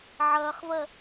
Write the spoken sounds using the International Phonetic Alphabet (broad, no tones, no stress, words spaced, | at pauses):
ʕɐːχvɜ